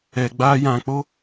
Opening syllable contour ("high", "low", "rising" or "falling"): low